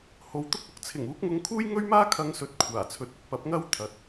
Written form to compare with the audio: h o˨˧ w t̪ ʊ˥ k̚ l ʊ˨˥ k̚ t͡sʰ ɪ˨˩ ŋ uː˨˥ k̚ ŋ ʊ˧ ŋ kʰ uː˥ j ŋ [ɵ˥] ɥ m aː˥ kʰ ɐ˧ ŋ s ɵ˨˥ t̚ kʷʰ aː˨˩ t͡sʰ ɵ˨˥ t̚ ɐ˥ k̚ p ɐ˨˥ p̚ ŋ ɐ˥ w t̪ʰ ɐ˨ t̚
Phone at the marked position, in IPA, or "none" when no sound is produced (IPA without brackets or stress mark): ɵ˥